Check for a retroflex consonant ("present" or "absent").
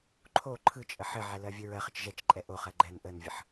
absent